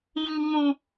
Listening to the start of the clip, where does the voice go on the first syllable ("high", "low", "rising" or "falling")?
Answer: low